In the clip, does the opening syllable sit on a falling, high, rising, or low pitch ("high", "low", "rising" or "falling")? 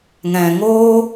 low